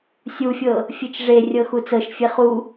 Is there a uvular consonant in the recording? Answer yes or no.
yes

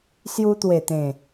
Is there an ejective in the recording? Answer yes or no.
no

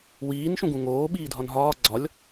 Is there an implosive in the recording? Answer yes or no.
yes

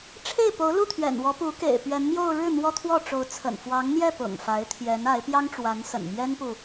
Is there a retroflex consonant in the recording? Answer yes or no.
yes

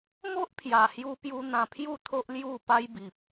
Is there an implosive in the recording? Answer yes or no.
no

